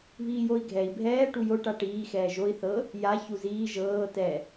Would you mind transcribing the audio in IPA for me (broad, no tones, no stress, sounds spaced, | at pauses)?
β iː j o i̯ ɡʱ ɛ i̯ bʱ ɛː ʈ u j o ʈ a ʈ iː x ɛː ʒ o i̯ θ ɤ | j a ç u z iː ʒ ɤː t ɛ